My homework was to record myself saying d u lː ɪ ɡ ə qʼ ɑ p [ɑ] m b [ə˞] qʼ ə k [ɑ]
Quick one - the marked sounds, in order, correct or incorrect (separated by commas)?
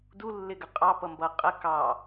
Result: incorrect, incorrect, correct